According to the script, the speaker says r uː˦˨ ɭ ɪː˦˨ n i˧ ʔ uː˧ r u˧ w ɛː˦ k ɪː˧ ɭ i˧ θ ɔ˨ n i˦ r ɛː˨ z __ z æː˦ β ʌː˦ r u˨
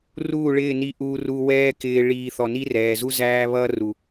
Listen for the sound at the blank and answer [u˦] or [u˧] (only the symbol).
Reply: u˦